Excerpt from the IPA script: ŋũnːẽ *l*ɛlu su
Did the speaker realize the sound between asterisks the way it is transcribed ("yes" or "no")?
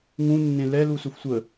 yes